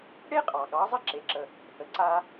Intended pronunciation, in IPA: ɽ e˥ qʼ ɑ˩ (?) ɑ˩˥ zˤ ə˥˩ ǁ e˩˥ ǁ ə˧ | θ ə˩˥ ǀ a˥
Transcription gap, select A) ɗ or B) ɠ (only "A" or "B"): B